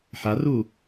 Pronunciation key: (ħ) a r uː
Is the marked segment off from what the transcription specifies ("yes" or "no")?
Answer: no